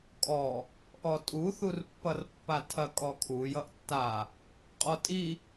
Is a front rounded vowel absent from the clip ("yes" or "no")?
yes